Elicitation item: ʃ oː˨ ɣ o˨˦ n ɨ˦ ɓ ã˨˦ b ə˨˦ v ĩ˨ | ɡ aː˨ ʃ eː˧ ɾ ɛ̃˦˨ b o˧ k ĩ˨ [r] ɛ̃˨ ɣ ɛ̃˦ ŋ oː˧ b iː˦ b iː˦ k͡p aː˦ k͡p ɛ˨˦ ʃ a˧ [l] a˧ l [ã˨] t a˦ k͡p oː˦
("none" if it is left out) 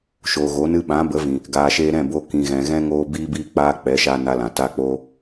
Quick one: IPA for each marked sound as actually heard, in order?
ɣ, n, ã˨

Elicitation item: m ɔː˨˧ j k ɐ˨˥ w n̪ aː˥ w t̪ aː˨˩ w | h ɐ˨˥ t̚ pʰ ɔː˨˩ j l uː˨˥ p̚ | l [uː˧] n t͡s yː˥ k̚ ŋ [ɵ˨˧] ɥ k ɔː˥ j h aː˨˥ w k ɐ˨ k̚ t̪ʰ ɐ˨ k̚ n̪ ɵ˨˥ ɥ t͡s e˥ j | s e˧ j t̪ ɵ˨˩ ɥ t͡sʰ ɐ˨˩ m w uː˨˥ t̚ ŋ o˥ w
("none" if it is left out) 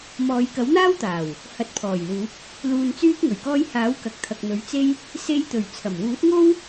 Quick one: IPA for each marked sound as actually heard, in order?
uː˧, ɵ˨˩

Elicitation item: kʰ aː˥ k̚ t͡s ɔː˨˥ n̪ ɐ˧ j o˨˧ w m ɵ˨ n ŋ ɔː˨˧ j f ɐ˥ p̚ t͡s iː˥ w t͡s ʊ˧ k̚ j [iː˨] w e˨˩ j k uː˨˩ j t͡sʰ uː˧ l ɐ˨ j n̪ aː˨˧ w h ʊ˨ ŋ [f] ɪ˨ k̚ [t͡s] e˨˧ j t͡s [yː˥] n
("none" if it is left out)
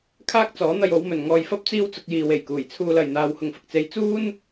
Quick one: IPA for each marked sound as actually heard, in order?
iː˨, f, t͡s, uː˥

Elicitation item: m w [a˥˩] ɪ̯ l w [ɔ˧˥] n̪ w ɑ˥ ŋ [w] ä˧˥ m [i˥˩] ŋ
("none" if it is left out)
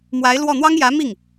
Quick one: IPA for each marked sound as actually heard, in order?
a˧˥, ɔ˥˩, j, i˥˩

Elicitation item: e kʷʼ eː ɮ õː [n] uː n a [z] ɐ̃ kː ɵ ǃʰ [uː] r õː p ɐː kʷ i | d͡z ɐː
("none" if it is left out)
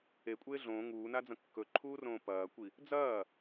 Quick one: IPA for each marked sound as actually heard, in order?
ŋ, d͡z, uː

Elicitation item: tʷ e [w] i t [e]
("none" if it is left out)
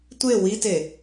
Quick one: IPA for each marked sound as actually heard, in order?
w, e

